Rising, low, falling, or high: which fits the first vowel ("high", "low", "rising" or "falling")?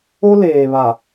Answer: high